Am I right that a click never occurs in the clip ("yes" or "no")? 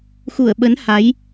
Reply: yes